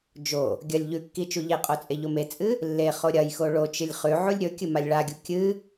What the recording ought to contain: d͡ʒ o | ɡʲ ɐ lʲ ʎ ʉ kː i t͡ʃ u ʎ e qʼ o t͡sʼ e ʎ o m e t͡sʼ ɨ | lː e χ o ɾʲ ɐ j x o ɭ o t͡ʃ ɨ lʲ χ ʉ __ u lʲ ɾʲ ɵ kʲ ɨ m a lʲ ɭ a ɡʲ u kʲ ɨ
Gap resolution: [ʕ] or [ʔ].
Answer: ʕ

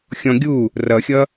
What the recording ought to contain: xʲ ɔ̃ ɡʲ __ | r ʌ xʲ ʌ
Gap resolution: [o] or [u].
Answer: u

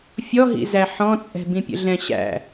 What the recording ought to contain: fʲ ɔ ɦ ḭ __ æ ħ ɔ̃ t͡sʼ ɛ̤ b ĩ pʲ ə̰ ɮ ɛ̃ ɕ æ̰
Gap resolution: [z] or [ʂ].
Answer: z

